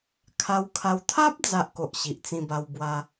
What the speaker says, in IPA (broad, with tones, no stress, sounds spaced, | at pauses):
kʰ a˧ w kʰ a˧ w t̪ʰ a˦ p̚ d͡z a˦ ʔ k o˨ ʔ ɕ i˨ ʔ t͡s ĩ˧ b a˧ w b w a˦